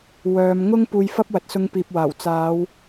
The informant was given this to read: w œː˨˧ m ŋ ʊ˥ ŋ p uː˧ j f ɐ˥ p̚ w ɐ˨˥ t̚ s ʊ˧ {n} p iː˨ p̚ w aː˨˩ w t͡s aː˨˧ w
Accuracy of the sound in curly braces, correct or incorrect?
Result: incorrect